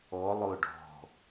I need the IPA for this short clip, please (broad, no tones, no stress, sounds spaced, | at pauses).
ɔ lˠ ʊː ɖ ɔ̤